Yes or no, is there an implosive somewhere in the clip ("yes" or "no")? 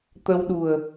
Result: yes